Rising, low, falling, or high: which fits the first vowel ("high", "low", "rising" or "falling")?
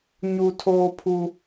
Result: high